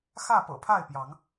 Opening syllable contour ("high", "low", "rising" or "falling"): falling